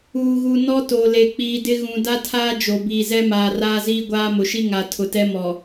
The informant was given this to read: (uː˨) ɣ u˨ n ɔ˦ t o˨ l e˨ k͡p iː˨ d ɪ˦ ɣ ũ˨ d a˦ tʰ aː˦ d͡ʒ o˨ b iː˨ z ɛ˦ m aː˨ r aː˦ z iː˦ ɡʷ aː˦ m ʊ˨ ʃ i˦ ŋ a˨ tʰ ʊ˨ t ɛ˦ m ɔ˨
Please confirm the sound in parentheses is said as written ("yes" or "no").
yes